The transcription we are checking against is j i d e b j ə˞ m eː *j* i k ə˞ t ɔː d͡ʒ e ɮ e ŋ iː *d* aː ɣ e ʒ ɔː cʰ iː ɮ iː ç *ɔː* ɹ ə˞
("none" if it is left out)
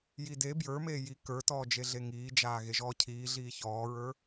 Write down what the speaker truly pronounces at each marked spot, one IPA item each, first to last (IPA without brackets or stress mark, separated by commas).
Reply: j, d͡ʒ, ɔː